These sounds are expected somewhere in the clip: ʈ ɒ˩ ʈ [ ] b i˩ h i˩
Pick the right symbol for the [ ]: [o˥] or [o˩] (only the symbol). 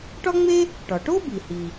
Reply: o˥